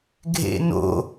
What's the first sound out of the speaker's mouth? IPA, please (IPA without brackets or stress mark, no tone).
ɡʱ